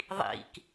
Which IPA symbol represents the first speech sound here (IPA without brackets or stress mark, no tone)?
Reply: ðˤ